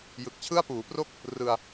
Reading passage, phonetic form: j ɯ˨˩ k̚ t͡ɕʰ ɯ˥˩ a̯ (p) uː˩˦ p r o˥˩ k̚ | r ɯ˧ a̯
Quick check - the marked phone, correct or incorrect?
correct